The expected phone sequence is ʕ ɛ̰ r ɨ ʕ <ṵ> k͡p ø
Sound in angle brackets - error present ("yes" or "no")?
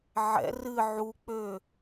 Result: yes